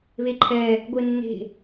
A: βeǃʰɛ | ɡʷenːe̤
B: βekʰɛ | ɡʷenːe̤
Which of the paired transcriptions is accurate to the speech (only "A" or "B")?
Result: A